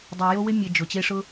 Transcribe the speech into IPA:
dˤ ɛ˨ j o˧ w ɪ˧ mʲ e˨ d͡ʒ ʊ˨ t͡ɕ e˧ ʂ ʊ˧

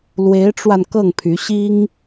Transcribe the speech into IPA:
l w e˧˥ ɪ̯ ʈ͡ʂ w a˧ n k ɤ˥˩ ŋ pʰ y˧˥ ɕ i˥ ŋ

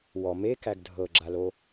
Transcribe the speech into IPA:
w ɔ m e k æ ɡ dʱ ɤ ɡ͡ǁ a l o

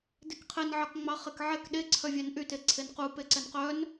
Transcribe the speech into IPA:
d e k qʰ e n ʕ ɑ k ŋ͡m ɑ χ e k ʕ ɛ k ɗ e ǀʰ œ vʲ ɛ n ʔ y t e ǀʰ e n q u p e ǀ ɛ n q œ n

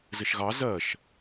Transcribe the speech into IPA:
z ɘ ʃ ɣ ɑ z ɜ ʃ

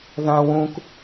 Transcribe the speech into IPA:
ð ã w ũ k

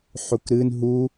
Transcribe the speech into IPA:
ħ u k ɾ ɨ n ɦ u

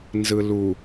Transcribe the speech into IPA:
n z ɯ l u

